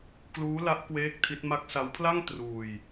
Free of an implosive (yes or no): yes